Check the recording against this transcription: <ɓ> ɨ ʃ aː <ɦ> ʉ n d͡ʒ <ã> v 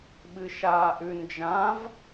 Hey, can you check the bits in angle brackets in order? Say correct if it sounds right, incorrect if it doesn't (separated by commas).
correct, incorrect, correct